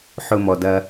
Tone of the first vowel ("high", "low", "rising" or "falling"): low